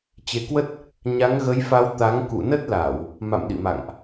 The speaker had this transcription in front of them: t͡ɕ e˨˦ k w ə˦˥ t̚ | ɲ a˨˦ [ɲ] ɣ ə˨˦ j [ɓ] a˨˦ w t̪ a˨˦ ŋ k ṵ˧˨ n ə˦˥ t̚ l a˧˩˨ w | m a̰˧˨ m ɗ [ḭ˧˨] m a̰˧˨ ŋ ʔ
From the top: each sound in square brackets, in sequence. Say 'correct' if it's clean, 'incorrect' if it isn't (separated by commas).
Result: incorrect, incorrect, correct